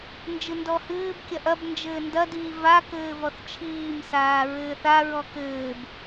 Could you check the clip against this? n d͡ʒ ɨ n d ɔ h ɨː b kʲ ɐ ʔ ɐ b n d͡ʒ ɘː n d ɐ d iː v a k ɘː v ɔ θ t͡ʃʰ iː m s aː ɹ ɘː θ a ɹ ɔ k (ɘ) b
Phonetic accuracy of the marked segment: incorrect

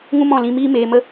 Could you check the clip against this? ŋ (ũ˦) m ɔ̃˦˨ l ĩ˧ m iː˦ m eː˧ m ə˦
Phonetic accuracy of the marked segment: correct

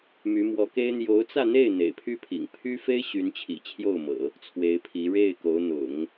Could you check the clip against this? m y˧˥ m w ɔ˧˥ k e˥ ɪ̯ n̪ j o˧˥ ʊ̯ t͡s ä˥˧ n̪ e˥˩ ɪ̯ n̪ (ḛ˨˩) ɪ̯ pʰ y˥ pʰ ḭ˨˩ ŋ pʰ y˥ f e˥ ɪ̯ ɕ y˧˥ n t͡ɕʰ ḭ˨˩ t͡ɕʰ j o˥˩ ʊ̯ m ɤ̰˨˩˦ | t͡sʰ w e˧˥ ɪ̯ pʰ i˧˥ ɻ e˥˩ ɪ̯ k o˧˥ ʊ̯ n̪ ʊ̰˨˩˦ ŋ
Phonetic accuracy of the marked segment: correct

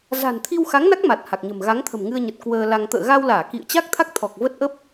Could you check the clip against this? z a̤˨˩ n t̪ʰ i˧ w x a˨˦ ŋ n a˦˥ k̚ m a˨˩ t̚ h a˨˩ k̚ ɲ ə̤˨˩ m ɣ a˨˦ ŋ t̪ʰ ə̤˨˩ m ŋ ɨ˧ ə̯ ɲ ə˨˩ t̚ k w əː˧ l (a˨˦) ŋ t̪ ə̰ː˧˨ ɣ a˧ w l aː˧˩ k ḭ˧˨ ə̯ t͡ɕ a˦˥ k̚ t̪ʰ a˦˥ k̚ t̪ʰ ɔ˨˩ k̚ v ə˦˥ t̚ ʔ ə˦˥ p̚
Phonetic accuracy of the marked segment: incorrect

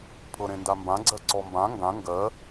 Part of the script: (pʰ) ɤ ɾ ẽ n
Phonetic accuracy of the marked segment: correct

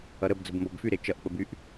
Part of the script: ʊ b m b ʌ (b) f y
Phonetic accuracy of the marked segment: correct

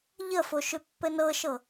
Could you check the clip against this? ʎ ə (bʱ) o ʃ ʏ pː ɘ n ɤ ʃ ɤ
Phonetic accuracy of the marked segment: incorrect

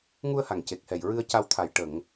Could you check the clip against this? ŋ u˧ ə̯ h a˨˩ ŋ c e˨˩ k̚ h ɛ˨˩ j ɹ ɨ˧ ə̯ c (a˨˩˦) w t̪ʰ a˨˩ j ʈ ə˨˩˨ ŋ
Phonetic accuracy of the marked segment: incorrect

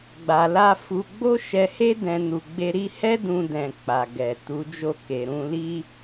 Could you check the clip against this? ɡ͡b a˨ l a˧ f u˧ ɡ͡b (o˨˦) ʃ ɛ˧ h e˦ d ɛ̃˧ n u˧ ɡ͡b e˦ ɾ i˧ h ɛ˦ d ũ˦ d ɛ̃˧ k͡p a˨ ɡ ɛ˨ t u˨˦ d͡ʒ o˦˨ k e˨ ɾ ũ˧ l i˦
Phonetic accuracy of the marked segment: incorrect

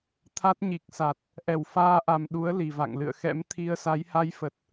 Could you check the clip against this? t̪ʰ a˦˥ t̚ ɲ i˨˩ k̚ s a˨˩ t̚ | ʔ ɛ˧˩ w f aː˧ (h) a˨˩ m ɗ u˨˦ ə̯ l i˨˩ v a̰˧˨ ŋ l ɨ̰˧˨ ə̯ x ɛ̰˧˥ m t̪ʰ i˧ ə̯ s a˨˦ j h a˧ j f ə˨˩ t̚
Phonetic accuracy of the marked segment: incorrect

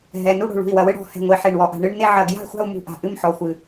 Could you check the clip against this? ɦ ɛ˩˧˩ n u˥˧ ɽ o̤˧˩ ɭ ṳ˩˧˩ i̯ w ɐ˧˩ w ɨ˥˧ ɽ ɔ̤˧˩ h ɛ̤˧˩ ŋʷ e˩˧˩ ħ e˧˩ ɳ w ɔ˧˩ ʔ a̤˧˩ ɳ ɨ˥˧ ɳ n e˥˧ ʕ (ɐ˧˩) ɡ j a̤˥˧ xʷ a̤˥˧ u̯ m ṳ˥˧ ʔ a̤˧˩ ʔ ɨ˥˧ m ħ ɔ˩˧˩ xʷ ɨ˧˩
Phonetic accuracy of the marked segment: correct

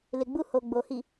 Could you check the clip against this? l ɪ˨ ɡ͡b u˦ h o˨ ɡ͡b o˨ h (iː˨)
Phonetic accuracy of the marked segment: incorrect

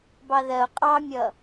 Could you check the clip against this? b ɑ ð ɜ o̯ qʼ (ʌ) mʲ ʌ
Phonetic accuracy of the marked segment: incorrect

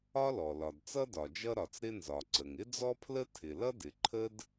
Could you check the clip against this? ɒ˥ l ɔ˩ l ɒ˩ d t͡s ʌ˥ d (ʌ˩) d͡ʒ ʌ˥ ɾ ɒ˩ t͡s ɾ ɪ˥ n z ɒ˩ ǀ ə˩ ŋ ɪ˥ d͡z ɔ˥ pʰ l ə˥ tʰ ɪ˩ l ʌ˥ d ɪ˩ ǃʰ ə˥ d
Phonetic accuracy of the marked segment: incorrect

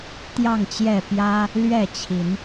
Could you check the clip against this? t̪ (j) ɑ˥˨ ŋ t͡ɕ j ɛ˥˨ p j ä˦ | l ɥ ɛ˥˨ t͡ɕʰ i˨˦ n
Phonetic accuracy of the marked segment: correct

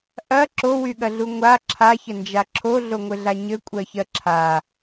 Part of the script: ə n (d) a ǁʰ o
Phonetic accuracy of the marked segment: incorrect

